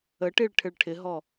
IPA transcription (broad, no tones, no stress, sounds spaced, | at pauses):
ə ʈ i ɭ ʈʰ ɪ ɭ ʈʰ ɪ ɦ ɔ